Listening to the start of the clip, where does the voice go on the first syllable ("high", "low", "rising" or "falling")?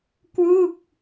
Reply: falling